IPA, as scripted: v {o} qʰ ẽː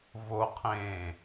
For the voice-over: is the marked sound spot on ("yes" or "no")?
yes